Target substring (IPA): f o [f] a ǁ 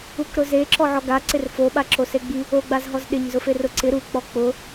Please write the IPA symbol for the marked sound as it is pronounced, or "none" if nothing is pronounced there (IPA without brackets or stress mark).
ɓ